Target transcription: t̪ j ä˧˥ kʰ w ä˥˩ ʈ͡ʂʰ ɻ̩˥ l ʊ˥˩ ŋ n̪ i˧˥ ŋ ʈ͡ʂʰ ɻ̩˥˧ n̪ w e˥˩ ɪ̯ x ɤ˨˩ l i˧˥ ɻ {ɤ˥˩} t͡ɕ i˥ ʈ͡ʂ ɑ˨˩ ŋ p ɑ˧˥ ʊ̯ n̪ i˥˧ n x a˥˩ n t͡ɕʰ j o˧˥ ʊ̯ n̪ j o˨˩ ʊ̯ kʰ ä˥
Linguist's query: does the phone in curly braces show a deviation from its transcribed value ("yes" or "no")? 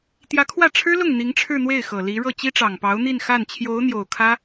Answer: no